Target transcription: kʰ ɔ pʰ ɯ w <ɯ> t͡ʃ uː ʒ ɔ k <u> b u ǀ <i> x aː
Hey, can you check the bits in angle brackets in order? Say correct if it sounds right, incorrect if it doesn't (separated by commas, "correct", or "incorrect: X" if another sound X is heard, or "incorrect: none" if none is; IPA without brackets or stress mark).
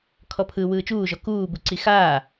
incorrect: ɯː, incorrect: uː, correct